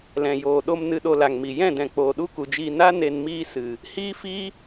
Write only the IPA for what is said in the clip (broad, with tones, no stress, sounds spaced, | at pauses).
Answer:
l ɛ̃˨ j oː˨ ɗ o˧ m n ɨ˧ ɗ o˧ l a˨ ŋ m i˨ j ɛ̃˦˨ d ɛ̃˨ k͡p oː˨ ɗ u˦ k u˨ d͡ʒ iː˧ n a˦ n e˧ n m iː˦ s ɨ˨ | h iː˦ f iː˦